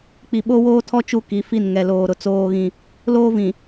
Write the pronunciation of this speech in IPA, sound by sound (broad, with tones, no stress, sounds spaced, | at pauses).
k͡p i˨ ɓ o˦ w oː˦ tʰ ɔ˦ t͡ʃ u˦ k i˨˦ f i˦˨ n ŋ ɛ˨ l oː˨ ɾ ʊ˨ t͡s oː˦ ɣ ĩ˦ | l oː˦ v ĩ˨